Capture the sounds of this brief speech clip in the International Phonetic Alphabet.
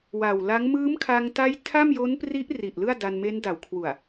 wa˨˩wla˦˥ŋ mɯː˦˥mkʰa˧ŋta˦˥j tʰa˥˩mjo˦˥n pri˦˥ʔri˨˩ʔ lɯ˥˩a̯da˧nme˦˥n da˩˦wkʰwu˨˩a̯

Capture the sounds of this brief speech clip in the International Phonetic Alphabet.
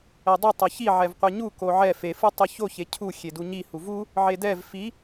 ɛdˤɯ tˤʌçi ʕɛvqʷeɲu koʕɛ fe fɯtˤɯço çecʰu xʲeduɲi huvu | ʕedɛv fi

